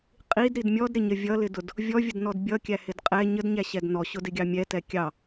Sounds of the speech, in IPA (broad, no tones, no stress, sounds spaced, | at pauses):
qʼ i d ɾ i d mʲ ɔ d ɾ ɪ ɲ ə vʲ ʌ l ɪ d ʊ d | vʲ ɔ vʲ ə d n ɔ d bʲ ʌ kʲ æ h ɪ d qʼ ɛ ɲ ə d ɲ æ ɕ ɛ d n ɔ ɕ ʊ d ɪ ɡʲ ɑ mʲ ɛ t ɛ kʲ ɑ